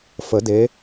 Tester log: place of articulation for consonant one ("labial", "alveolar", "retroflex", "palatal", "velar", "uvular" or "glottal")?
labial